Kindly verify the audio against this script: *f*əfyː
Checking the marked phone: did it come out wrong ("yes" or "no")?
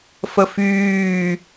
no